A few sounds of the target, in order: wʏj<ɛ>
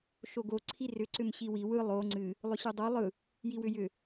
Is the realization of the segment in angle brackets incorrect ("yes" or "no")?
yes